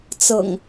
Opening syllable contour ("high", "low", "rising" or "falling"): low